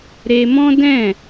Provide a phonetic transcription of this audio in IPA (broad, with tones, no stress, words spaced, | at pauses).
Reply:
ɾe˧mɔ̃˦dɛ̃˦˨